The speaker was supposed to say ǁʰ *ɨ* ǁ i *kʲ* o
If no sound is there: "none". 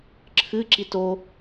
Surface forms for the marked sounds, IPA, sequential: ɨ, t

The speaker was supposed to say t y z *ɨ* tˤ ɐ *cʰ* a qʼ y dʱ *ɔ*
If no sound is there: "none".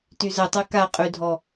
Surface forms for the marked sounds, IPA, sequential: ə, k, ɔ

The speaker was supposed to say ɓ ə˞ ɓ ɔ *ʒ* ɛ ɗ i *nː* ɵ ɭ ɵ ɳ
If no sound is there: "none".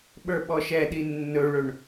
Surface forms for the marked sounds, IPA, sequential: ʃ, nː

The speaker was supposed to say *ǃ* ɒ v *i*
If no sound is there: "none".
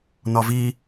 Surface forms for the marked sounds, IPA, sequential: n, i

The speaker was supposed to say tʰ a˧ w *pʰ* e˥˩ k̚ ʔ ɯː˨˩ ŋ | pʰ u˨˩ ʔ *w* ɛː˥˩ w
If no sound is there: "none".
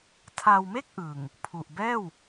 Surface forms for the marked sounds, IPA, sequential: m, b

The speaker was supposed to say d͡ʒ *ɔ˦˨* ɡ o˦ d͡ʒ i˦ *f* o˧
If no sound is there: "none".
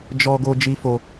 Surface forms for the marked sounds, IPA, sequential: ɔ˦, f

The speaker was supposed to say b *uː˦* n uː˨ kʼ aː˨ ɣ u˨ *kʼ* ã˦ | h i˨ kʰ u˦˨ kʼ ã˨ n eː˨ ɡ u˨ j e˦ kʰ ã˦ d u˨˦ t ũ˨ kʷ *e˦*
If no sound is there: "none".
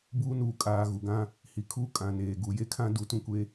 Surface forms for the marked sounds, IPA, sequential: uː˦, ɡ, e˦

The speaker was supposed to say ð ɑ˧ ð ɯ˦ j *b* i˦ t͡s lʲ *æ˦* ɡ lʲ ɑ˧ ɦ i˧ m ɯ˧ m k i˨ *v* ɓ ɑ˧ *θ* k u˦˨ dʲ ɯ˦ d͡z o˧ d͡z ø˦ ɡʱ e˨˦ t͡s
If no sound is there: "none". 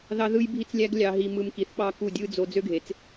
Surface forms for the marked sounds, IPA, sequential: bʱ, æ˦, θ, none

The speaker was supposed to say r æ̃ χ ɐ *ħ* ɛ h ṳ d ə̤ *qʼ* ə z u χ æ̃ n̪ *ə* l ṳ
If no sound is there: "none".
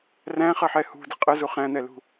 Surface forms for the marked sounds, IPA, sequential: ħ, qʼ, ɛ

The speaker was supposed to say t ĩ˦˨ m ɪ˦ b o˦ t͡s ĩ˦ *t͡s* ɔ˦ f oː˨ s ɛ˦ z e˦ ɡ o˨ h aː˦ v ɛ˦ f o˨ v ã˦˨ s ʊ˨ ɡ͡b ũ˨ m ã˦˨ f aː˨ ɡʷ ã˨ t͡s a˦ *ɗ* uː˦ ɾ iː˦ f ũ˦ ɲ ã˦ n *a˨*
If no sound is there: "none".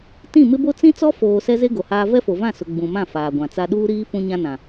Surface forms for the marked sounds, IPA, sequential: t͡s, ɗ, ã˨

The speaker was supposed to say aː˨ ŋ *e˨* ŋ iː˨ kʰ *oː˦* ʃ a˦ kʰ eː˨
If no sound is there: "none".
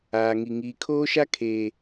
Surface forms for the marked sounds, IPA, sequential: i˨, oː˦

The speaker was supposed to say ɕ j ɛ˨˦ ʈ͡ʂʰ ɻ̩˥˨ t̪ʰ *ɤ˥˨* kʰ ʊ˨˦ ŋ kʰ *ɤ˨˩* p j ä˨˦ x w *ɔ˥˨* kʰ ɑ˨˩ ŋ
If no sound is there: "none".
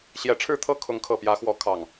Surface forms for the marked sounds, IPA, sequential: ɤ˥˨, ɤ˨˩, ɔ˨˦

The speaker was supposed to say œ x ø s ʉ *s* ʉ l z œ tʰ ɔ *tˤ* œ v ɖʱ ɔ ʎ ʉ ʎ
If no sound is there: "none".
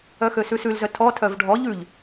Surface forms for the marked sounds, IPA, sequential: s, tʰ

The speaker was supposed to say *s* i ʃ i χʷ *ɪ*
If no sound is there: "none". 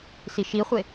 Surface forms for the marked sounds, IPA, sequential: s, ɪ

